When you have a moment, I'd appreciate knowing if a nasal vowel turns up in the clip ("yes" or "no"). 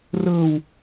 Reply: no